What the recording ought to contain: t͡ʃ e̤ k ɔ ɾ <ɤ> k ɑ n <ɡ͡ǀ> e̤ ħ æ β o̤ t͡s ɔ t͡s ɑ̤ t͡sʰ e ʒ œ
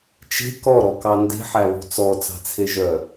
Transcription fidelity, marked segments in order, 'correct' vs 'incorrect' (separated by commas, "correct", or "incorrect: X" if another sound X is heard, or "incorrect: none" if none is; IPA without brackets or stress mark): incorrect: ɔ, incorrect: d